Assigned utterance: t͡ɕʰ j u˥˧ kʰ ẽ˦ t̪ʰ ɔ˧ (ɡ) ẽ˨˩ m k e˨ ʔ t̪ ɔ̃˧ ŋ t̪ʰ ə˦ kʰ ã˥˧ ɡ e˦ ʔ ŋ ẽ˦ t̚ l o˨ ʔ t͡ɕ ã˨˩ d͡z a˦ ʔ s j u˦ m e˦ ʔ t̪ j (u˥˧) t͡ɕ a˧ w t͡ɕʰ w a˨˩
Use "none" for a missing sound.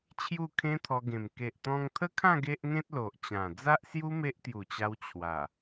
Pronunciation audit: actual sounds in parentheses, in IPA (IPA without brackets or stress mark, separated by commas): ɡ, u˨˩